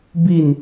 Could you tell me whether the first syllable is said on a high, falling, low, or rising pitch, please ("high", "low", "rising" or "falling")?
falling